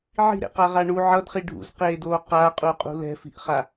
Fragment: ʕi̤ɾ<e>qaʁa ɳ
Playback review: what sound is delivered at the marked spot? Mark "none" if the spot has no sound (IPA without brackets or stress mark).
ḛ